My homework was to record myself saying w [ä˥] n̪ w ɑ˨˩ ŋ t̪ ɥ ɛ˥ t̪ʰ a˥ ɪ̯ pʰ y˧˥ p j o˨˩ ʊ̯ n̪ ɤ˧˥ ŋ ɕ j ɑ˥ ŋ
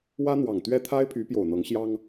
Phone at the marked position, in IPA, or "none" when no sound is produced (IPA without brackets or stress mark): ä˥